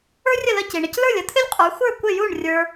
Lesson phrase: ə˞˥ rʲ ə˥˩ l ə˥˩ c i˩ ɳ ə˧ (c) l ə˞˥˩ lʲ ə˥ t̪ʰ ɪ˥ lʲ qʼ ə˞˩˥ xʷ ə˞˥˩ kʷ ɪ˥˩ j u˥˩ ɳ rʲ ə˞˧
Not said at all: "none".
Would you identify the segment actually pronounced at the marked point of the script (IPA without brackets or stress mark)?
c